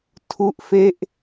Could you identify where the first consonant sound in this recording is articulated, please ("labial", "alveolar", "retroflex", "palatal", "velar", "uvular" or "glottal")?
alveolar